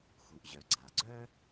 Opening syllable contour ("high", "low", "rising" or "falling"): low